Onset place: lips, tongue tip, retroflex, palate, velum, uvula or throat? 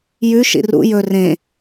palate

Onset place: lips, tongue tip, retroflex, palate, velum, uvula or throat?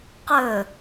uvula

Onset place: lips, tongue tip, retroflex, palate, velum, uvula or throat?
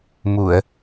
lips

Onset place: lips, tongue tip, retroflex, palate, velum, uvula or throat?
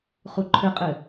uvula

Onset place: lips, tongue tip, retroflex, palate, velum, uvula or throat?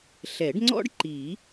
tongue tip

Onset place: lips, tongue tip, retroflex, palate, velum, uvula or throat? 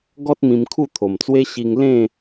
velum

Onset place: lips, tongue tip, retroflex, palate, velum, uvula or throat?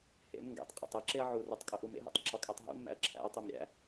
throat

